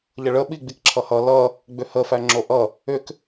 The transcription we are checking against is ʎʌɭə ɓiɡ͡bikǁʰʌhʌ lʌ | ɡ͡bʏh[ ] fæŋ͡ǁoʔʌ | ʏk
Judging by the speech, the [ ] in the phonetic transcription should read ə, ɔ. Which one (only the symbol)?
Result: ə